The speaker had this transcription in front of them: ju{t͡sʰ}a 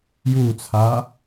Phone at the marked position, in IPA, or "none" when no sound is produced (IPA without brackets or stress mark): t͡sʰ